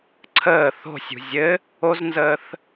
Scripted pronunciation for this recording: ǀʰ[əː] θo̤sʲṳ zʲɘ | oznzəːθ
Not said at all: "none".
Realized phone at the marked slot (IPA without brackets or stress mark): əː